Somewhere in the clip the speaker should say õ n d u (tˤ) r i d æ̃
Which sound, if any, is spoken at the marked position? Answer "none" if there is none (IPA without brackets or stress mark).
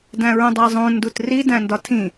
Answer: t